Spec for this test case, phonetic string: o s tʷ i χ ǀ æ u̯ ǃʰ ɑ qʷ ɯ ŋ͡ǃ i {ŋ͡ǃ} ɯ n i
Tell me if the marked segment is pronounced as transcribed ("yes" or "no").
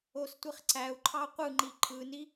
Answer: no